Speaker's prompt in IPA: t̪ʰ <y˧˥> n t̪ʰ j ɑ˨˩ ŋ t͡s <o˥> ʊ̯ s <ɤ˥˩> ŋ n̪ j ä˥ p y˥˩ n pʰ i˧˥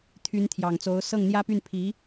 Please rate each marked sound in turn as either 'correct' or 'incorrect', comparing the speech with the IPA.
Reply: correct, incorrect: o˧˥, correct

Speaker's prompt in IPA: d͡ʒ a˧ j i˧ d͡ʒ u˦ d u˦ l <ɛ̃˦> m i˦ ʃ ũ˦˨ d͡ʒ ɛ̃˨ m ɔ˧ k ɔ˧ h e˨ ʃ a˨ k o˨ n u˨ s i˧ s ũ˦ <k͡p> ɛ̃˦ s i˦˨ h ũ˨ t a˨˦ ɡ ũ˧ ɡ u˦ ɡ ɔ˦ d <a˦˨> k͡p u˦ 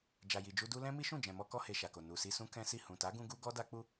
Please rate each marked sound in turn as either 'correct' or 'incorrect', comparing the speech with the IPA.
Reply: correct, incorrect: k, incorrect: a˦

